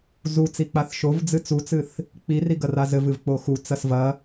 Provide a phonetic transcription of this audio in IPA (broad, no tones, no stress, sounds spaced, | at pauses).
z u t͡s i k͡p a θ ʃ o v d͡z ɨ t͡s u t͡s ɨ θ | k͡p i r i ɡ ɐ r a z ɘ v ɨ v k͡p o x u t͡s ɐ s v ɐ